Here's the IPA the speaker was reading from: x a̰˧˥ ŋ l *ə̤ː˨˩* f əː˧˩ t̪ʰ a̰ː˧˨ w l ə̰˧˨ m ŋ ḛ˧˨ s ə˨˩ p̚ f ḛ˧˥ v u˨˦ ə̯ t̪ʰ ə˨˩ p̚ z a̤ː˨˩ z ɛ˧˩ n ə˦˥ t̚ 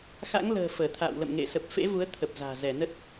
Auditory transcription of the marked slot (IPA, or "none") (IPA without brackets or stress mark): ə̤ː˨˩